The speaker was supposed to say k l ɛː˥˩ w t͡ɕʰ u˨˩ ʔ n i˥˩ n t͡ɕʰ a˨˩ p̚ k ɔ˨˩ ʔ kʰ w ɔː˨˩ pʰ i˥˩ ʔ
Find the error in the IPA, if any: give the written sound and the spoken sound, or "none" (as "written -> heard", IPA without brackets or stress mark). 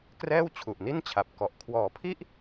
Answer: l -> r